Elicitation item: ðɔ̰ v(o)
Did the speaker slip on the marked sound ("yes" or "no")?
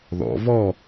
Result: yes